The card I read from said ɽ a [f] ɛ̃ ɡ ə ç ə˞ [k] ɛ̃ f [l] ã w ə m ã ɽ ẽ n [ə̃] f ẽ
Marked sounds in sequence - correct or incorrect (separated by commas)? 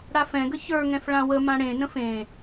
correct, incorrect, incorrect, correct